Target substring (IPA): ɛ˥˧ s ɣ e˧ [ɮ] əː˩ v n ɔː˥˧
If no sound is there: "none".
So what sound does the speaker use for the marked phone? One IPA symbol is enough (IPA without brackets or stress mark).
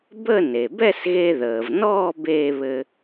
ð